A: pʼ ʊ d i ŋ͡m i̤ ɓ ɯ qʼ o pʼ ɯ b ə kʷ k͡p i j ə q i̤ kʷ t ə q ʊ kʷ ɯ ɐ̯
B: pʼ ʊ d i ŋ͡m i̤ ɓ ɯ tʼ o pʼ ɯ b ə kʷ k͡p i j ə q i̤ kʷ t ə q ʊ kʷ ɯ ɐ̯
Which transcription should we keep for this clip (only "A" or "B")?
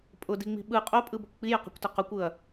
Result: A